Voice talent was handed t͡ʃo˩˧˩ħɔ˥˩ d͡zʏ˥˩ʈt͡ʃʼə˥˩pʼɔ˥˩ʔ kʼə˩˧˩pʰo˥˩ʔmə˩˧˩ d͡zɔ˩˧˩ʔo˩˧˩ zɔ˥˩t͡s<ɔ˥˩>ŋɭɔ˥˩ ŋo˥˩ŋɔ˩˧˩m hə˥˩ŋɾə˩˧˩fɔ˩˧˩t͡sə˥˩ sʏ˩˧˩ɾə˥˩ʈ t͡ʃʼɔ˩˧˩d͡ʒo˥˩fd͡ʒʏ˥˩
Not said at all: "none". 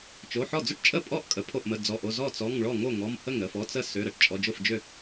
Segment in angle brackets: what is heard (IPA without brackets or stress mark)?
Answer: ɔ˩˧˩